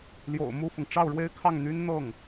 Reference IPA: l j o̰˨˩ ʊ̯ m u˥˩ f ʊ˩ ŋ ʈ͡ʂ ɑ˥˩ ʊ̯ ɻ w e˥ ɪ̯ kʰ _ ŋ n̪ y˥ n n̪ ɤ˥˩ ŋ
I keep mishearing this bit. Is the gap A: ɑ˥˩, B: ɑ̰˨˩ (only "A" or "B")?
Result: A